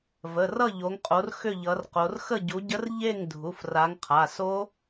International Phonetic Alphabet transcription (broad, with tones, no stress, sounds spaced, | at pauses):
v ə˩˧˩ r ʌ˥˨ ʎ o˨˦ ŋ qʼ o˨˦ r x ʏ˥˨ ʎ ʌ˨˦ r q o˨˦ r x ə˥˨ ɟ u˨˦ ɟ ə˦˥ r ʎ e˥˨ ŋ dʱ u˩˧˩ f r a˨˦ ŋ qʰ a˩˧˩ s o˦˥